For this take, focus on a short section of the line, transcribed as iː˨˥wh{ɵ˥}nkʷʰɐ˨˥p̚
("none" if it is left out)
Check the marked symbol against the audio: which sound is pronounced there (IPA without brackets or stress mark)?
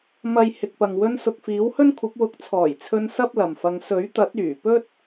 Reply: ɵ˥